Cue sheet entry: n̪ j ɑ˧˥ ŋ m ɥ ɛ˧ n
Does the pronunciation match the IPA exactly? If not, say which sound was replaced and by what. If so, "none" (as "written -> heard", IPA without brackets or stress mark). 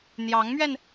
none